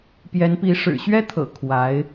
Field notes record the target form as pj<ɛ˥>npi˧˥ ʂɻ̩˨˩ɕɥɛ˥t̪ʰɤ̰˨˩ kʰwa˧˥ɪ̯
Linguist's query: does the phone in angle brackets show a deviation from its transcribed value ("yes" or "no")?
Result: yes